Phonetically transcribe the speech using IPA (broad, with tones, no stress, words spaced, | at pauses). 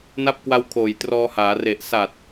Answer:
na˦˥p̚kwa˧w kʰoː˨˩jtrɔː˧haː˩˦ re˨˩ʔsa˨˩t̚